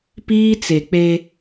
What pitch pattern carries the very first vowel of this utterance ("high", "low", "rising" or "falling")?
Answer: high